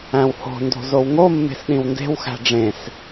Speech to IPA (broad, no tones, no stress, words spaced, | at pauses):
æ̃who̤ndo̤ zowŋomːe̤s ɗĩwnde̤wxæ̤ ɖ͡ʐẽs